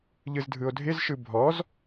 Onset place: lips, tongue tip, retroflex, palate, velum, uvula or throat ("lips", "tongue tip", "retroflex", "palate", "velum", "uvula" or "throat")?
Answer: palate